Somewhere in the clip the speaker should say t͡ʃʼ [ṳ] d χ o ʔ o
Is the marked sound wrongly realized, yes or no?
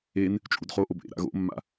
yes